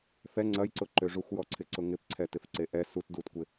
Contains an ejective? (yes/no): no